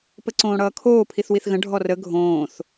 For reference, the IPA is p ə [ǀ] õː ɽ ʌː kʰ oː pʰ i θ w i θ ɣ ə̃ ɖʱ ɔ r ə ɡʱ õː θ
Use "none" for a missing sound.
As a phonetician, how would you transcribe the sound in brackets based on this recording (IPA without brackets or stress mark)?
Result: ǀ